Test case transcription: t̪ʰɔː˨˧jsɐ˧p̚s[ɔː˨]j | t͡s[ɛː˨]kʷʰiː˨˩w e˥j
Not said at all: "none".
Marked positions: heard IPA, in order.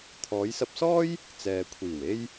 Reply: ɔː˥, ɛː˨

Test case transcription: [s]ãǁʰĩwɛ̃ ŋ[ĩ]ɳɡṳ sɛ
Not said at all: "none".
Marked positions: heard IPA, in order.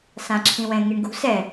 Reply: s, i

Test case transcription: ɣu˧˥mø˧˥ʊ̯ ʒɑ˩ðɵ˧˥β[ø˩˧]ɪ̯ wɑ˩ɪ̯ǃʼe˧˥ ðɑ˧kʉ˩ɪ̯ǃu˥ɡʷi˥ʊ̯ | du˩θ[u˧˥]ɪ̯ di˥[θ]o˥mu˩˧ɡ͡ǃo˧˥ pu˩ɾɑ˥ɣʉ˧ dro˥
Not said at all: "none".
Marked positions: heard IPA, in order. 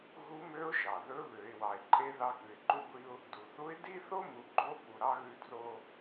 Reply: ø˩˧, u˧˥, θ

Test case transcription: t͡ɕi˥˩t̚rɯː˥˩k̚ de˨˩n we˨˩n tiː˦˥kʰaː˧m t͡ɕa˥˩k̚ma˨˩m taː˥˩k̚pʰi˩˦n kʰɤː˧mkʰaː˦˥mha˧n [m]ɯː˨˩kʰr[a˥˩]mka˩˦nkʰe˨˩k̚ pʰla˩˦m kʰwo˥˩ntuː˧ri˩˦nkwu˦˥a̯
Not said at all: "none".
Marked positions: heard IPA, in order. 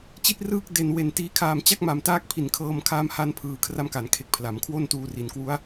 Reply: pʰ, a˦˥

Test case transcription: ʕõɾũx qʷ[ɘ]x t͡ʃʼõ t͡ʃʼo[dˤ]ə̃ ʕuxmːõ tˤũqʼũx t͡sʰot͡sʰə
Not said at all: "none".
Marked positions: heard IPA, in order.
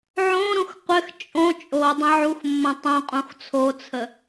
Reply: ɘ, dˤ

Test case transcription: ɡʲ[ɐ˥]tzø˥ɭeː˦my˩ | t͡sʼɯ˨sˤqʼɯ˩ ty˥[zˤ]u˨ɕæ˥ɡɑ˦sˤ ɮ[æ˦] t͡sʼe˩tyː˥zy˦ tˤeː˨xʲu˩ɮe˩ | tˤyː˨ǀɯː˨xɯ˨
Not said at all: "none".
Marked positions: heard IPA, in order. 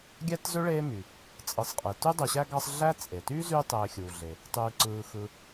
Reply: æ˥, dˤ, æ˦

